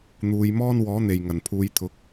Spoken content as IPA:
n̪ uː˨˧ j m ɔː˥ n w ɔː˨˥ n̪ e˨˩ j ŋ ɐ˨˩ n pʰ uː˨˧ j t̪ʰ ʊ˨˥ k̚

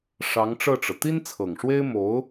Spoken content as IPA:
ʂ ɑ˧˥ ŋ ʈ͡ʂ ɤ˥˩ ʈ͡ʂ ɤ˩ t̪ i˥ n t͡sʰ ɤ˨˩ ŋ ʂ w e˥ ɪ̯ m o˧˥ ʊ̯

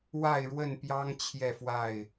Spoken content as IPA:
w a˥˨ ɪ̯ ɻ w ə˥˨ n p j ɑ˦ ŋ t͡ɕʰ j ɛ˥˨ f w a˥˨ ɪ̯

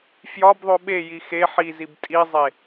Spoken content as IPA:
f j ɒ b ðˤ o ɓ e j i x e ħ i z i b tʼ i zˤ e

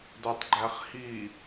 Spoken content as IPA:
d o tˤ ɡ͡ǃ æ χ h i

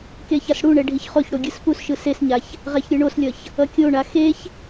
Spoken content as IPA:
k e ç a s ɽ u ɳ ɛ ɖʱ i ç χ o ç ɽ o ɡʲ ɯ s p u s ʃ ɯ s e s ɲ a ç | ʁ ɛ ç ɾʲ ɯ ɳ o s lʲ ʌ ç | ʌ kʲ o ɳ a x e ç

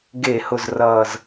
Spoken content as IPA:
ɡ e˧˩˧ h ʊ˨˩ z r ʌː˨˩ z

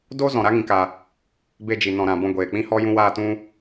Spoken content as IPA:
d o˦ z ɔ̃˨ ɾ a˦ ŋ ĩ˨ k a˧ | b e˧ d͡ʒ i˨ n ɔ̃˨ ɾ ã˨ b ɔ̃˧ ɡʷ eː˨ k͡p ĩ˦ h ɔ˦ j ũ˧ w aː˧ t ũ˧

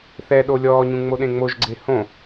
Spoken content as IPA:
θ ɛ ɗ o lʲ ɔː ɲ ũ ŋ͡m o ɗ ẽ ŋ͡m o ʒ ɡ͡ǀ e h õ

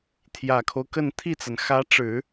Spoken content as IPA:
t̪ʰ j ä˨˩ kʰ o˦ ʊ̯ k ə˥˧ n t̪ʰ i˥˩ t͡s a˩ n x ä˧˥ ʈ͡ʂ ɻ̩˨˩˦

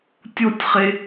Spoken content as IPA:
tʲ o tʲ χ e

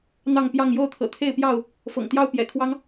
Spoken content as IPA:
n̪ ɑ˥˨ ŋ p j ɑ˥˨ ŋ j o˥˨ ʊ̯ t̪ʰ ɤ̰˨˩ t̪ʰ e˥˨ ɪ̯ p j ɑ˥˨ ʊ̯ | f ɤ̰˨˩ ŋ t̪ j ɑ˦ ʊ̯ p j ɛ̰˨˩ kʰ w ɑ˦ ŋ

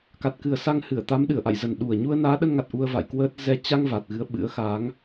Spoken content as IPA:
k a˨˩ t̚ k ɨ˨˩ ə̯ s a˧ ŋ h ɨ˧˩ ə̯ t̪ a˨˦ m ɗ ɨ˧˩ ə̯ ʔ a̰˧˨ j z ə˨˩ n ɗ u˨˩ ə̯ ɲ u˧ ə̯ n aː˨˦ ɗ ə˧ n ŋ a˨˩ t̚ ʔ u˧ ə̯ v a̰˧˨ j k w əː˦˥ t̚ z ɛ˧ t͡ɕ a˧ ŋ v a˨˩ t̚ ɣ ɨ˨˦ ə̯ ɓ ɨ̰˧˥ ə̯ x a˨˦ ŋ

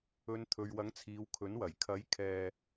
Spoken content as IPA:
ɵ˨˧ n t̪ʰ ɵ˨ ɥ w ɐ˨˥ ŋ t͡sʰ iː˨˧ w kʰ ɵ˨˥ n w ɐ˨˩ j kʰ ɐ˨˥ j kʰ ɛː˧

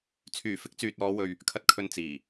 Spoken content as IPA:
t͡sʰ yː˨˩ f ɪ˨˥ k̚ t͡s yː˨ t̚ ɔː˨˧ w ɵ˨ ɥ | kʰ ɐ˨ t̚ kʰ ɵ˨ n t͡s iː˨˩

